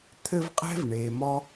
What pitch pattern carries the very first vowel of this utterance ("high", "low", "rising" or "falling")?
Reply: high